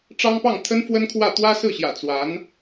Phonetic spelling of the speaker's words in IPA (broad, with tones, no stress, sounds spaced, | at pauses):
ʈ͡ʂ ɑ˥ ŋ p ɑ˥˩ ŋ t̪ʰ ə˥ n f w ə˥ n kʰ w ä˥˩ t̪ w ä˥ s ɹ̩˥˩ ɕ j ä̰˨˩ t͡s w a˧˥ n